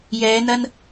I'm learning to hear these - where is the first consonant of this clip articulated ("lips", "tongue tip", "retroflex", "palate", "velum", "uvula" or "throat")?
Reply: palate